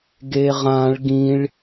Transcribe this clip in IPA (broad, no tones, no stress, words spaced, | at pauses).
ɡeʁãɭ ɡĩɭ